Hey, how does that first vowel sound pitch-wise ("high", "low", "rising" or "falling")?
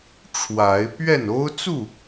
rising